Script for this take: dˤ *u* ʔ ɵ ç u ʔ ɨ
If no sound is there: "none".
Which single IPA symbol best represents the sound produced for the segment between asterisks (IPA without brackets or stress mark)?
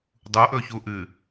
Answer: u